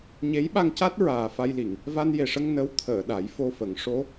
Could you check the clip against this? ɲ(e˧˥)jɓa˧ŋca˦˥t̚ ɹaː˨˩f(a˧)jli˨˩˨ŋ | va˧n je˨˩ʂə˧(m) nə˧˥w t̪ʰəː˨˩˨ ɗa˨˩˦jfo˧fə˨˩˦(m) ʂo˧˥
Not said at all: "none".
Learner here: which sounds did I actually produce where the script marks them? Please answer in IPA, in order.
e˧˥, a˧, ŋ, ŋ

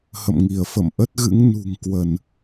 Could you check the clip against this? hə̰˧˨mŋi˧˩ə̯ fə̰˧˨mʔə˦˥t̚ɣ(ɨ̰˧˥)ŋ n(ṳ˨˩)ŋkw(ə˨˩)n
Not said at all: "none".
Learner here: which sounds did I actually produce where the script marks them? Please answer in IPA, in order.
ɨ̰˧˥, ṳ˨˩, ə˧˩˨

